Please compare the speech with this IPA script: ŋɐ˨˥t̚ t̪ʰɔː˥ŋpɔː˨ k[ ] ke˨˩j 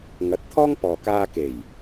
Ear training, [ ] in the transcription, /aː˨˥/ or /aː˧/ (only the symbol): aː˧